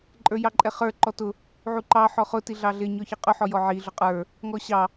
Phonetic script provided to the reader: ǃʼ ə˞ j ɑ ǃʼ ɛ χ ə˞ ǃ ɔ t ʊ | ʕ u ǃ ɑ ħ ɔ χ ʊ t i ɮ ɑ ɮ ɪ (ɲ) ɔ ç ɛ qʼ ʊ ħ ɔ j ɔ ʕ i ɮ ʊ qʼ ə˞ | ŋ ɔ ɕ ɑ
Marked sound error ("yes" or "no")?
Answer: no